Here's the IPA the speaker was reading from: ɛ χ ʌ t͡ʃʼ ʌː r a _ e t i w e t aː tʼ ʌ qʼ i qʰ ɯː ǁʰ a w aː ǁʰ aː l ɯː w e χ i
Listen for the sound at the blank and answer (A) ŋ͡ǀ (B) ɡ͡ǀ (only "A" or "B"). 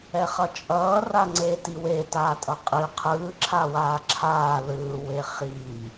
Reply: A